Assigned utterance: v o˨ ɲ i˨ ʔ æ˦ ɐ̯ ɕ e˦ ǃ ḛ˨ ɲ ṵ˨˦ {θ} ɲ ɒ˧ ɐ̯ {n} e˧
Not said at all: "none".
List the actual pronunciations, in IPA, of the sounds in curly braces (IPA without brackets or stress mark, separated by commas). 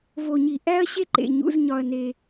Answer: z, n